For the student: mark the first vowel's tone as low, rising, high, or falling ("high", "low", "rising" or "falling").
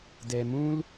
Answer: low